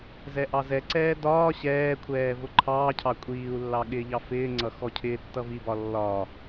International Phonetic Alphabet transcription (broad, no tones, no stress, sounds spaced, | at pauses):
z ɛ ʔ ɑ z ɛ ǀ ɛː d ɒː ɕ ɛː kʷʰ ɛː v ʊ ǃʰ ɑː cʰ ɑ kʷʼ iː u̯ lː ɑ ɠ ɪː ʎ ɑ f ɪː ŋ͡ǀ ʌ x ɔ cʰ ɪː tː ʌ v i b ɒ lː ɒ